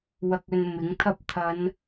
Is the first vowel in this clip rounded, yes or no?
no